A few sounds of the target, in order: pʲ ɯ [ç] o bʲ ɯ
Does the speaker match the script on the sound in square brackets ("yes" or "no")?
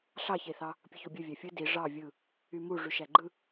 yes